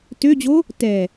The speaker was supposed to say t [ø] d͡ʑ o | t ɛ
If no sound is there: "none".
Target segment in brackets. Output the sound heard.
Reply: ø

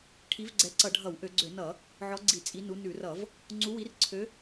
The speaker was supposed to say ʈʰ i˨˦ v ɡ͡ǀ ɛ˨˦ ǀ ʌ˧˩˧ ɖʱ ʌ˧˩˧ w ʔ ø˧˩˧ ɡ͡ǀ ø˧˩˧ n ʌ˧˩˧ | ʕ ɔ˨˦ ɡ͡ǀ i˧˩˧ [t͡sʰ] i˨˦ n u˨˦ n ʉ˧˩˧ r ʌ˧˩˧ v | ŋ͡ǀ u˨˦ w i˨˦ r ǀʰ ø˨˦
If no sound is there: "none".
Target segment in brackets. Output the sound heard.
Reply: t͡sʼ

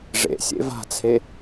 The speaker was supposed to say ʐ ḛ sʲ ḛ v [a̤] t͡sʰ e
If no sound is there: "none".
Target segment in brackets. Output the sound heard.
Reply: a̤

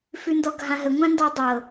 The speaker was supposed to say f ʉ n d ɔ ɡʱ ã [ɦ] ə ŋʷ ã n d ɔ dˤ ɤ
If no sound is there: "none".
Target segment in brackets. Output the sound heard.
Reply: ɦ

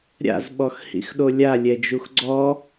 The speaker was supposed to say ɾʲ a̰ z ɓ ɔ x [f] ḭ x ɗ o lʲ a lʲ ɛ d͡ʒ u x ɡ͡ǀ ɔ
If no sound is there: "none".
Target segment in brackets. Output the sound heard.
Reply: h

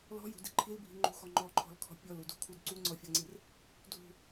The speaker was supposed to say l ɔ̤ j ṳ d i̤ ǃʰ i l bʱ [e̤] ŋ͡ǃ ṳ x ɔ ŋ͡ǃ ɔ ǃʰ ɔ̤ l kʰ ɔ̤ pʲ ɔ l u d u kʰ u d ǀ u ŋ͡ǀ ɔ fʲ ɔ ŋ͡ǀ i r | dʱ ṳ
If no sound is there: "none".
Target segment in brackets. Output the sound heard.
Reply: i̤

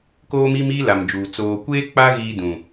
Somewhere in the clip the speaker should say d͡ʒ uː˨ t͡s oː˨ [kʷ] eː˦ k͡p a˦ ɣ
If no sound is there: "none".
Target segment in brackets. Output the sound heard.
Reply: kʷ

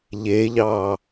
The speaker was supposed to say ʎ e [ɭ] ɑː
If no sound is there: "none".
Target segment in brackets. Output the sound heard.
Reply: ʎ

